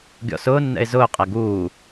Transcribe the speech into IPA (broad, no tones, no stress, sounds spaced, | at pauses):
ɡʲ ɔ̰ s ʊː nː ɛ̰ ɪ̯ z ʊː qʼ æ ɡ uː